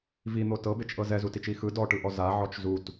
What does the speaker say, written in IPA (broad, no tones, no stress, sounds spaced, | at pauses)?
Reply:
v i n̪ o t ɤ b e t͡ʃ ʔ ɤ z ɛ z u t i t͡ʃ i x ɯ d ɔ ʈ ɯ ʔ ɔ z a ʕ ɔ t͡ʃ z u t